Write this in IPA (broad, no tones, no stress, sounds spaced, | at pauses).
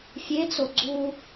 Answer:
fʲ e t͡s o ɡ͡ǀ u